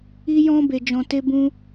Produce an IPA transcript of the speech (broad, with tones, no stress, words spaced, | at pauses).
i˦jɔ̃˦ be˧d͡ʒɔ̃˧te˦bũ˦